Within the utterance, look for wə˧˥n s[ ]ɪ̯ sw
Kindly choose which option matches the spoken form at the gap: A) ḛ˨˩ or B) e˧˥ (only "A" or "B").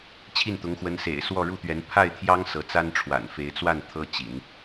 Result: A